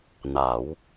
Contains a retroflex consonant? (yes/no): no